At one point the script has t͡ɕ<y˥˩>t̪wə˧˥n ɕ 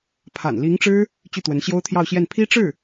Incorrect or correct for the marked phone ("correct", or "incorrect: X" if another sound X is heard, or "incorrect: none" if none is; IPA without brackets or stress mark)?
correct